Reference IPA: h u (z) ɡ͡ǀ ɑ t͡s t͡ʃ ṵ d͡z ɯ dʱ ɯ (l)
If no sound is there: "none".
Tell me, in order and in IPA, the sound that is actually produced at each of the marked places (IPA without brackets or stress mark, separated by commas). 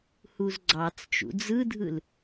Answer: z, l